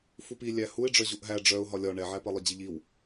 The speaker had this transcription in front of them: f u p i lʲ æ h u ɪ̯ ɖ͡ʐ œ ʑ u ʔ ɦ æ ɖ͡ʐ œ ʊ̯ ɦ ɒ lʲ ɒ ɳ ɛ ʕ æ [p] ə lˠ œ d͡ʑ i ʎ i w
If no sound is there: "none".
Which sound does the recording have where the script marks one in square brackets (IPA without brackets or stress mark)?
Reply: p